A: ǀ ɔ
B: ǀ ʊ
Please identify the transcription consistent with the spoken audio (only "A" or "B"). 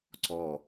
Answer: A